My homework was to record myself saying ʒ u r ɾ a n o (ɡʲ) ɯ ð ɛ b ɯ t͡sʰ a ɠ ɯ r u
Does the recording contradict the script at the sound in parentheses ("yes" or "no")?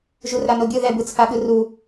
no